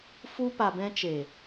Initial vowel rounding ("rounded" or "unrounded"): rounded